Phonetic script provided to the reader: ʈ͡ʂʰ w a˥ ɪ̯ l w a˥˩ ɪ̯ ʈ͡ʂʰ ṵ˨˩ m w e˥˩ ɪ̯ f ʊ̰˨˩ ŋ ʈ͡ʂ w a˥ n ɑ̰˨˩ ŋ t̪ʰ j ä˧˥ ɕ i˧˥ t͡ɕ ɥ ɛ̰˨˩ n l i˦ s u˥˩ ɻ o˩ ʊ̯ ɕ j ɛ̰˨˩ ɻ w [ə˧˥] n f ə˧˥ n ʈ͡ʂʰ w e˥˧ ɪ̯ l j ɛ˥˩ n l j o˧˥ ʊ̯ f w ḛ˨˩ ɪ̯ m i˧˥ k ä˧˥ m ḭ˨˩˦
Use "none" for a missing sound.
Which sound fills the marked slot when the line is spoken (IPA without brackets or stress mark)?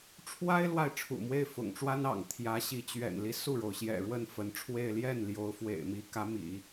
ə˥˩